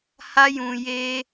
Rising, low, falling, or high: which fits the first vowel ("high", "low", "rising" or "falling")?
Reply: high